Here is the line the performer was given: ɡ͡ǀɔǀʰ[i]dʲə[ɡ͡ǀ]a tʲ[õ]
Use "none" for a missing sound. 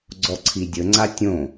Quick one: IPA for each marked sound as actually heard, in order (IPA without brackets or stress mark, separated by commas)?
i, ŋ͡ǀ, õ